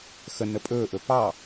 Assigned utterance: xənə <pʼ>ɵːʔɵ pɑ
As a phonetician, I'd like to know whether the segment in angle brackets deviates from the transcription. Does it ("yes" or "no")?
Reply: no